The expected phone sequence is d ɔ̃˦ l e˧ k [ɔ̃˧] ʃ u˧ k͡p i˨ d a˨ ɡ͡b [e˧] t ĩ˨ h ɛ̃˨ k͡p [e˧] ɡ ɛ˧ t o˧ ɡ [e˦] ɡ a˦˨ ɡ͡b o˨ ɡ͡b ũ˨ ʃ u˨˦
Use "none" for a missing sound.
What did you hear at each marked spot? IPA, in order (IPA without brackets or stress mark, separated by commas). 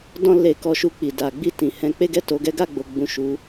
ɔ˧, i˧, e˧, ɛ˦